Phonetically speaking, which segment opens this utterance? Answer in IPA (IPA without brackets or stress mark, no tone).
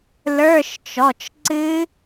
l